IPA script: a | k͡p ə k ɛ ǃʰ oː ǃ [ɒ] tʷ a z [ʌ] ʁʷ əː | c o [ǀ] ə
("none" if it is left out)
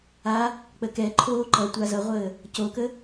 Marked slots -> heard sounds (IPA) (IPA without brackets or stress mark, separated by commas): ʌ, ʌ, k